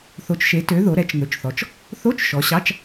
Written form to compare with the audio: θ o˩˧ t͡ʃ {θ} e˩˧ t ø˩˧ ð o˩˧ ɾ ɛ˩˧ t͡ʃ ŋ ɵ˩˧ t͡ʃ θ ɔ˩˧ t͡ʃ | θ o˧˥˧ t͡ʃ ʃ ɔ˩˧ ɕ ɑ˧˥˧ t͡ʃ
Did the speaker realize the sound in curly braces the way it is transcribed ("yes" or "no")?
no